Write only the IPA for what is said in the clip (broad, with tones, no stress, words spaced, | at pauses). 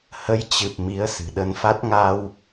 hə˨˦jt͡ɕɨ˨˩p̚ mi˨˦ə̯sɨ̤˨˩ɗə˧nfa˦˥t̚ ŋa˧w